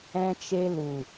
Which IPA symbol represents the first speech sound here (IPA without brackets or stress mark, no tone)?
ɛ̃